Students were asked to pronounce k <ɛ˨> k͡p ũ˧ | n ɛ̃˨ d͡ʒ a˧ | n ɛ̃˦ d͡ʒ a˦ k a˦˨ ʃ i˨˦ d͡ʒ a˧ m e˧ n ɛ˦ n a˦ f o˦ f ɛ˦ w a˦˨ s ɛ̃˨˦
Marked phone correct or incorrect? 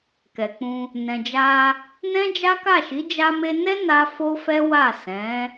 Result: correct